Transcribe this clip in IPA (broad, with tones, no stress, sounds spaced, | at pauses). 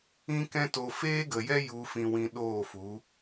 ĩ˦ k ɛ̃˦ t o˧ f eː˦ ɡ ə˨ j ɛ˦ j u˧ f ĩ˧ w ĩ˧ ɗ oː˦˨ f u˨˦